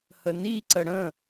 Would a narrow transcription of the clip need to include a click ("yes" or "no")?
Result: yes